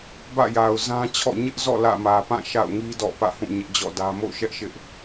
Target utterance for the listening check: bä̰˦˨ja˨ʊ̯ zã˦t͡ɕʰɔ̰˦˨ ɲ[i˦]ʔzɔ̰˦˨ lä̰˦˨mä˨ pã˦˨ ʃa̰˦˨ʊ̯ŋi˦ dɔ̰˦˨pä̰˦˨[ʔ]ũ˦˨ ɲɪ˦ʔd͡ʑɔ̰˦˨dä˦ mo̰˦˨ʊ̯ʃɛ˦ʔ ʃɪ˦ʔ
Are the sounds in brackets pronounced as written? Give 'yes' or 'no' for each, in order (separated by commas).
no, no